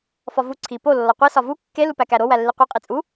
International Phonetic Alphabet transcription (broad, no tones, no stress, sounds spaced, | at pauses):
f ɒ v u ǀʰ i p o lː ɒ qʷ i s ɒ v u kː e l u p æ k æ ɾ o w æ lː i qʷ e qʼ i t͡sʼ u